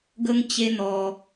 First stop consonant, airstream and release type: plain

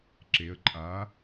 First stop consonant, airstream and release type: click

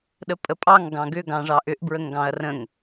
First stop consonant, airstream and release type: implosive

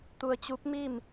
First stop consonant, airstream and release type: plain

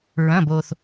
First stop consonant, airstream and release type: plain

